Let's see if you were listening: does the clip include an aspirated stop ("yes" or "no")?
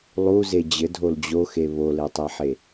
no